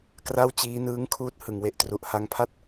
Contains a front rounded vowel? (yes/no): no